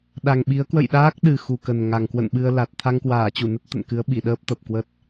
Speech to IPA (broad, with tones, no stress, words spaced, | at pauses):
ɗa˨˩ŋɓi˨˦ə̯ kwə̰˧˨jɗaː˦˥k̚ɗɨ˨˩ xu˨˩kə˨˩n ŋa˨˩ŋkwə̰˧˨nɓɨ˧ə̯la˨˩t̚ t̪ʰa˧ŋkwaː˧˩t͡ɕu˧˩nə˦˥t̚ t̪ə̰˧˨nkɨ˨˦ə̯ɓi˧˩ ɗəː˦˥p̚t̪ə˨˩p̚kwə˦˥t̚